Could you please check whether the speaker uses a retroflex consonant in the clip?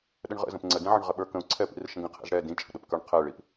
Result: yes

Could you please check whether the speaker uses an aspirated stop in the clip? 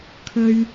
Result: yes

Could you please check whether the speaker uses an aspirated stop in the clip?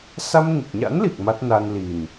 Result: no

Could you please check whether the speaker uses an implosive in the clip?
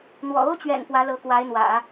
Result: no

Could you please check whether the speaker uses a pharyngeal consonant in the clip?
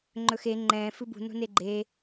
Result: no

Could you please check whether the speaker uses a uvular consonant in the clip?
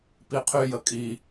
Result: yes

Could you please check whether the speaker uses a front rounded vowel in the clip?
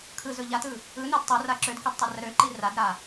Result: yes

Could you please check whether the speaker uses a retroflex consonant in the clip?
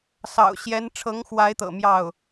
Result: yes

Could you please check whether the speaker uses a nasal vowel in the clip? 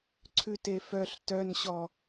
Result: no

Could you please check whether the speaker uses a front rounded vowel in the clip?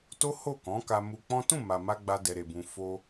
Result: no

